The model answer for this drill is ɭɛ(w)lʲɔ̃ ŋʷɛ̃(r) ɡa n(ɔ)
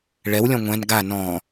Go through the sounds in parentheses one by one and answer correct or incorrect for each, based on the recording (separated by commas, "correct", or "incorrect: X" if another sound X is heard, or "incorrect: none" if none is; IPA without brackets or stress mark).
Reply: correct, incorrect: n, incorrect: ɔ̃